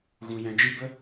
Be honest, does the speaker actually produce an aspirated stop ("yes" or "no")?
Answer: no